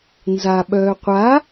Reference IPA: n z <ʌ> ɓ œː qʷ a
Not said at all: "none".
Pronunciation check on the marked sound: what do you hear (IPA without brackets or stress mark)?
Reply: a